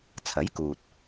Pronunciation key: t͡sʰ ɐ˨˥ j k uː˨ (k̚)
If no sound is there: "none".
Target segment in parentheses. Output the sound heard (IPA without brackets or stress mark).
t̚